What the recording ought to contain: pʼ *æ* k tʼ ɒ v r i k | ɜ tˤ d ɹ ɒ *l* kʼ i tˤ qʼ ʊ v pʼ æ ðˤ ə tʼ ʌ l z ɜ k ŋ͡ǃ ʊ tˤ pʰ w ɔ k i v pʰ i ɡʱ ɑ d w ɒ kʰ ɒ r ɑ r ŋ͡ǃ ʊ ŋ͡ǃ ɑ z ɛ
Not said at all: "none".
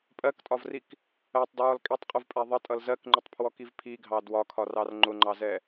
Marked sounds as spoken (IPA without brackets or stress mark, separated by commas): ɜ, l